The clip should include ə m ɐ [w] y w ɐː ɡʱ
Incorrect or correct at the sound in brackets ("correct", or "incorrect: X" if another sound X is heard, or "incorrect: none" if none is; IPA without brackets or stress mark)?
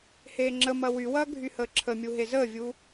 correct